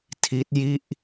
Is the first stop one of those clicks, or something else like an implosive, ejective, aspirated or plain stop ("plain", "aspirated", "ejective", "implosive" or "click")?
aspirated